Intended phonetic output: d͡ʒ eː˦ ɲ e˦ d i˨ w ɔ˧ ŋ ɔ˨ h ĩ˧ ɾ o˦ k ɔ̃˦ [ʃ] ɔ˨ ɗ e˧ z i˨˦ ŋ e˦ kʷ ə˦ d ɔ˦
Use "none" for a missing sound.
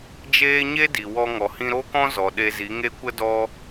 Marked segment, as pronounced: z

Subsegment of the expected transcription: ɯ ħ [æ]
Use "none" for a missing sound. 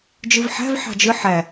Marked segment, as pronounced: æ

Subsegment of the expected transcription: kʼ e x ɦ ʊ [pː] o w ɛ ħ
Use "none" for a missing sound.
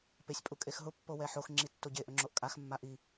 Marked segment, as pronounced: pː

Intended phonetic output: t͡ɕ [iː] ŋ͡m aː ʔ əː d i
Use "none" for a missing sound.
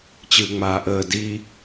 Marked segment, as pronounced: ɨː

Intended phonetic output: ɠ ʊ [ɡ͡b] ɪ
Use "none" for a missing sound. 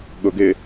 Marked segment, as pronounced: ɡ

